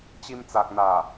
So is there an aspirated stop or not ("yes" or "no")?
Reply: no